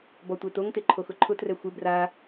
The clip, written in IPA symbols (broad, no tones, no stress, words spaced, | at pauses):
bɔtʷetoŋte ǃʰoxʊǃʰʊtrɛ xʷɪ bra